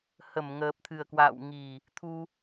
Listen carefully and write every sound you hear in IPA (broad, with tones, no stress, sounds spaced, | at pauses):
h ə˧˩ m ŋ əː˨˩ p̚ t̪ʰ ɨ˨˩ ə̯ k w a̰ː˧˨ w ŋ i˨˩ | t̪ʰ u˧